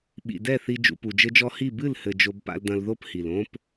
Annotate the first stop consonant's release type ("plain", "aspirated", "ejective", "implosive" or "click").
implosive